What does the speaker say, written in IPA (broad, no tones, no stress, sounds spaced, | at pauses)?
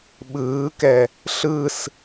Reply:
ɓ ɯː k ɛ | ɬ ɯ s